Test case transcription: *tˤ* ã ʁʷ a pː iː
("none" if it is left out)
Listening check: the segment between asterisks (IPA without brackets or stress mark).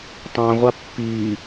tˤ